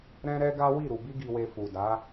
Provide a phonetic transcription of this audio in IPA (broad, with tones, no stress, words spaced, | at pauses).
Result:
ɾɛ̃˦ɾɛ˦ɡa˦ wi˦˨ɾu˨ bi˧ɡi˨we˨ fu˨da˨˦